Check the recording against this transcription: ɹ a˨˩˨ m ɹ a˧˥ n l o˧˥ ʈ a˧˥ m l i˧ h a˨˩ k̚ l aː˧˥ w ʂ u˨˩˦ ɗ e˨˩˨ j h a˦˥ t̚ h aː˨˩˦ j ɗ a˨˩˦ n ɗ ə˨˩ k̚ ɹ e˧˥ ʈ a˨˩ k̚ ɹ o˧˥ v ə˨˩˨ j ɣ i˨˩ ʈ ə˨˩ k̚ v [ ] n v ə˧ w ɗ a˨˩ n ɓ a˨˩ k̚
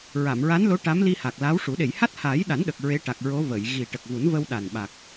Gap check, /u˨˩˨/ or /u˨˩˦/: u˨˩˦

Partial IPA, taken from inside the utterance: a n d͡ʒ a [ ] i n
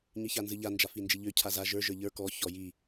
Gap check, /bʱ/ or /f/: f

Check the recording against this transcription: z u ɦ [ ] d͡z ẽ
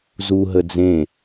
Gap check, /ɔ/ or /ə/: ə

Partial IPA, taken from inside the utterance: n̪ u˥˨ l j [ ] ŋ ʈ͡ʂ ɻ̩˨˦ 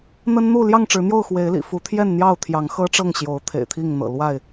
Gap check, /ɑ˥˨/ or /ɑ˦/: ɑ˥˨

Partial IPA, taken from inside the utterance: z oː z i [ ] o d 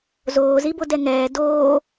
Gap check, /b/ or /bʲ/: b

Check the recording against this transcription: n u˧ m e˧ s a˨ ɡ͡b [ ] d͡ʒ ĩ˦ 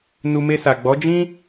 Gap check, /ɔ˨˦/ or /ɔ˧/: ɔ˨˦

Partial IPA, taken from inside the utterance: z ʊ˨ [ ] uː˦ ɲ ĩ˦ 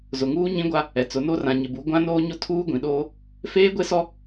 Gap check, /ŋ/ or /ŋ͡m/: ŋ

